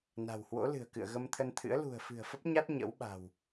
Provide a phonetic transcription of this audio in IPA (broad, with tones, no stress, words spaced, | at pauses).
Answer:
na̤˨˩whwo̰˧˥lɨ̤˨˩ə̯ kɨ̰˧˨ə̯ɣə˧mt̪ʰə˧nt̪ʰɨ̰˧˥ə̯ lṳ˨˩ə̯fɨ̤˨˩ə̯ fə˦˥p̚ɲa˦˥t̚ ɲə̰˧˥wɓa̤˨˩w